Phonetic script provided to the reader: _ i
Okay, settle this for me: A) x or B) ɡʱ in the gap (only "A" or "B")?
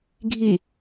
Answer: B